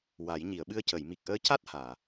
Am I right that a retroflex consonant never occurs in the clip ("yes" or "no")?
yes